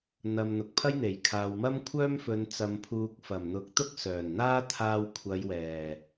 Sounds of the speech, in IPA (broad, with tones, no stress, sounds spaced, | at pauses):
n̪ ɐ˨ m n̪ ʊ˨ k̚ pʰ ɐ˥ j n̪ e˨˩ j kʰ aː˨ w m ɐ˥ m kʷʰ œː˥ m f ɵ˨˧ n t͡s ɐ˨ m pʰ uː˨ k̚ f ɐ˨˩ m n̪ ʊ˨˥ k̚ t̪ ʊ˥ k̚ s œː˨˩ n n̪ aː˥ t̪ʰ aː˧ w kʷʰ ɐ˨˧ j w ɛː˨˩